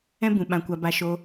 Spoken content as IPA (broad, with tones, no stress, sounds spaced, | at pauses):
ɛ̃˦ b ũ˨ ɓ ã˨ kʷ a˨ b a˨ ʃ o˧